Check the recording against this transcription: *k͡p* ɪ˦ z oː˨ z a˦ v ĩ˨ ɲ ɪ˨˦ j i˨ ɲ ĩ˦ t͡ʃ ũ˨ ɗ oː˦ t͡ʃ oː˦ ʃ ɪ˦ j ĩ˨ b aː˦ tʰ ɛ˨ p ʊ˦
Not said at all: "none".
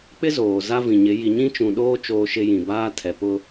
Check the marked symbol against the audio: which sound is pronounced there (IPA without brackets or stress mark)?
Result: k͡p